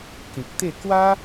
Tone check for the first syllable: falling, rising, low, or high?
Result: low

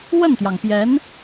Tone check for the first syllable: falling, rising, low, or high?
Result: falling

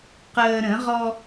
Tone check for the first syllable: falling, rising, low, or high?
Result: low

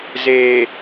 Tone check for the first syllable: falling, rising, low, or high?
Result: low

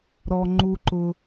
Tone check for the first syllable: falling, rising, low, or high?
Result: low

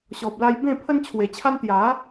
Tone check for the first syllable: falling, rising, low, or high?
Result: low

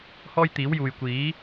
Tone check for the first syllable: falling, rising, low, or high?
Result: high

